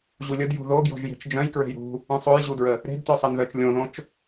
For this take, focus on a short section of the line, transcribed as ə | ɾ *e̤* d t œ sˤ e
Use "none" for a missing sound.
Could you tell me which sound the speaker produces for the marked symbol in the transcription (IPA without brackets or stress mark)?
e̤